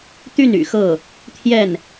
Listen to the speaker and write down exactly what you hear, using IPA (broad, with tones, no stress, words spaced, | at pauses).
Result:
t̪y˥˩n y̰˨˩xɤ˥˩ | t̪ʰjɛ˥˩n